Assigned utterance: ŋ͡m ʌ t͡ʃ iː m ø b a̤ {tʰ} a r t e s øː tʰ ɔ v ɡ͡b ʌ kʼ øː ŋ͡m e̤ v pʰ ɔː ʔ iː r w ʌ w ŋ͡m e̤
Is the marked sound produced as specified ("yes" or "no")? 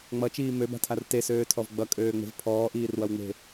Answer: yes